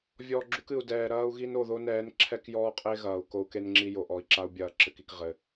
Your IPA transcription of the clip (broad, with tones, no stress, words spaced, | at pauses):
vʲɔ˨ ɡ͡ǁu˦kɨ˨u̯dɛː˨ ɾɐː˦u̯ɣi˦no˨ðo˦ nɛː˨˦nǁʰɛ˦kjɔː˦qʼe˦ ɣɐː˨u̯ko˦u̯ke˦nŋ͡ǁi˦ jo˨ʔɔ˨i̯ǁa˦u̯ bʲɐː˨ǁɘ˨ki˨k ʁɘ˨